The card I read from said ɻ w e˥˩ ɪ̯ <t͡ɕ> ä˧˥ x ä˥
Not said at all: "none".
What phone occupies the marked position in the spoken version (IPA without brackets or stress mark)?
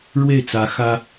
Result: t͡s